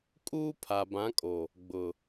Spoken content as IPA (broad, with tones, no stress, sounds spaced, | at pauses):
kʼ uː˦ pʰ a˨ b ã˨˦ kʼ o˨ | ɡ͡b ʊ˨